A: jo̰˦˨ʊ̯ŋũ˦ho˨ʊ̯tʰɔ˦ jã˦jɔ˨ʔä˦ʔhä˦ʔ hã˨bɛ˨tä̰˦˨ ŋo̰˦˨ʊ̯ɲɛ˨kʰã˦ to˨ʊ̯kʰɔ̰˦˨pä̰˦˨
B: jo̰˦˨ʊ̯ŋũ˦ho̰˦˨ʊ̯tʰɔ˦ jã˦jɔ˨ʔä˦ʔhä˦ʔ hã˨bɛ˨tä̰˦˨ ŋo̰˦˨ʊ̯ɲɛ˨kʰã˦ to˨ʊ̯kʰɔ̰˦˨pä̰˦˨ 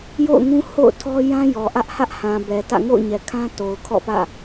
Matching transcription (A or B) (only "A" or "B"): B